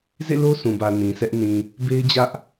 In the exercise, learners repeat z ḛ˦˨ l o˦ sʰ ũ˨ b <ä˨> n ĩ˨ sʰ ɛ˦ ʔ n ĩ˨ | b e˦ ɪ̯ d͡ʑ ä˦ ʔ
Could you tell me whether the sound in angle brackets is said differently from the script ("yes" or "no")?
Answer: no